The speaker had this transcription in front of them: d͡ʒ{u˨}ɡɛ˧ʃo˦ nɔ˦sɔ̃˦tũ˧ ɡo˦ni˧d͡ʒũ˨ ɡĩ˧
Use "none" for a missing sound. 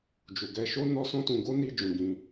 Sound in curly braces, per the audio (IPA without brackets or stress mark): u˨